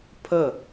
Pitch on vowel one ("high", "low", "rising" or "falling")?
falling